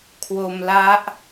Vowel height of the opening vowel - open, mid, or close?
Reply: mid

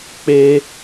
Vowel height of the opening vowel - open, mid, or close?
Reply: mid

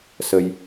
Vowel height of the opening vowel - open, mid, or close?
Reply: mid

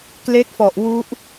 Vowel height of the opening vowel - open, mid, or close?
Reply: mid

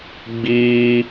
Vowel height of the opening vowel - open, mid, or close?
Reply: close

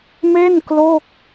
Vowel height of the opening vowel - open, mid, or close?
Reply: mid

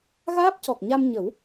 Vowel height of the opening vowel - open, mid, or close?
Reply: open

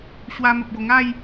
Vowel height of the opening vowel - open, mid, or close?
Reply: open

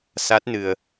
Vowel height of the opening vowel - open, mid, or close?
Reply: open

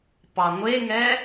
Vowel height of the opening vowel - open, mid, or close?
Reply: open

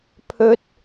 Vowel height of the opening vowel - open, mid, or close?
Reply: mid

